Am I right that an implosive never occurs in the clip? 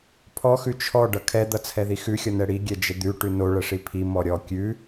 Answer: yes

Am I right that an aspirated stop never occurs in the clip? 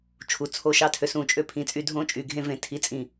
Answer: no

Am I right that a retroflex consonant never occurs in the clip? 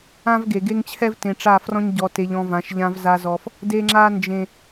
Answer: no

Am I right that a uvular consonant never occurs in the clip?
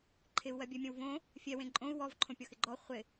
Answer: no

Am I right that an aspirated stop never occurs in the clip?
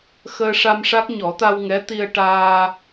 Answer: yes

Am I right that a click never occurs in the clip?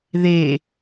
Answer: yes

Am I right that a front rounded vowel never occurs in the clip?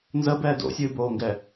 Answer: yes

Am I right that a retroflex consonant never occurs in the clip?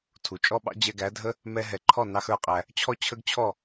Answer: yes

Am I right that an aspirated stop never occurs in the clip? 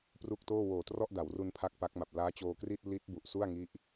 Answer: no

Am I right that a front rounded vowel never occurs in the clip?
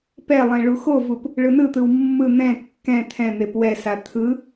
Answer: yes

